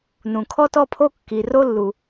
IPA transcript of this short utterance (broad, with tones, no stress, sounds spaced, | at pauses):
n ũ˩ kʰ ɔ˥ t ɔ˥ pʰ o˥ kː i˩ r o˥ lː u˩